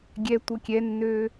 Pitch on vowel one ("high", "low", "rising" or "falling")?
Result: high